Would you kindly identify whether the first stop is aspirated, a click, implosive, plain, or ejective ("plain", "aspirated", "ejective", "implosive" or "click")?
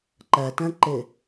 click